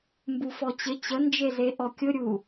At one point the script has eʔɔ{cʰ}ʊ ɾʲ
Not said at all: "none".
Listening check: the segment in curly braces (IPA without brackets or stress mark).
kʲ